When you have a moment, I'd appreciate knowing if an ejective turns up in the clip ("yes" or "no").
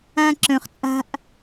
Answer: yes